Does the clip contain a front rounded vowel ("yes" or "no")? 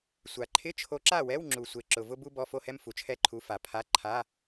no